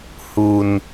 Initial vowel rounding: rounded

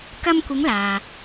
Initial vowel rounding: unrounded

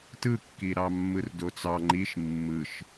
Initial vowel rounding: unrounded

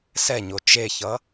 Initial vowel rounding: unrounded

